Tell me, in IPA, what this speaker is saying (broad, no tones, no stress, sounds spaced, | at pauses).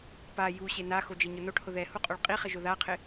p a j u ɕ e n a x o d͡ʒ e ɲ ʊ n o ʈ h ʊ ð ɛ h u qʼ o ɭ qʼ i χ ɪ ʒ ʊ ð a qʰ ɪ